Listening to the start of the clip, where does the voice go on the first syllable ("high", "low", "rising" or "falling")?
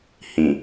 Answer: low